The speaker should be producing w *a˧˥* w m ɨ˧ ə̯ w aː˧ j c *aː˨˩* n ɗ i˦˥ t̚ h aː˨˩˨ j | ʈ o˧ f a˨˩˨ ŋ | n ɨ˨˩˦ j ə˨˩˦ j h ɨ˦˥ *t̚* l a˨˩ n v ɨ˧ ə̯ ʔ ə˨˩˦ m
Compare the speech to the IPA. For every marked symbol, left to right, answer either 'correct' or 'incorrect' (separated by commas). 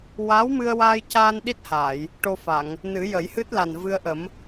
correct, incorrect, correct